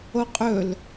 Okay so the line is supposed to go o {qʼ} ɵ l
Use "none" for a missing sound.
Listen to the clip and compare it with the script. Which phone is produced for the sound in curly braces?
qʼ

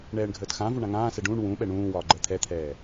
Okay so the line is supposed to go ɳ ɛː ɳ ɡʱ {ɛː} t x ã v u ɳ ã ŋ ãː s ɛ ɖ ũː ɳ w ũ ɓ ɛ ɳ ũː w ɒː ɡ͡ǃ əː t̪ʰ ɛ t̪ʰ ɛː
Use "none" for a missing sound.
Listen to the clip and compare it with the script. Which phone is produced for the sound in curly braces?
əː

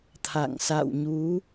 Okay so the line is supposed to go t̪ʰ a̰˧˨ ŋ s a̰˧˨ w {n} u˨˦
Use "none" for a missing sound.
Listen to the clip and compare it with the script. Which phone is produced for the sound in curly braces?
ɲ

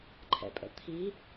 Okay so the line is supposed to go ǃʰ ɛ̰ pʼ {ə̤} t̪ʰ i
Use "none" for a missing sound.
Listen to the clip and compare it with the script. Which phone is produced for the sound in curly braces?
ə̰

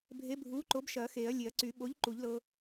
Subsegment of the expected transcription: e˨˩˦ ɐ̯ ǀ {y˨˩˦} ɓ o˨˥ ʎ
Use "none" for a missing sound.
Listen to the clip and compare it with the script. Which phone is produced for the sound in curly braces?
y˨˩˦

